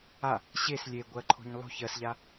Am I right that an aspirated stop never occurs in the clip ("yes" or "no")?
no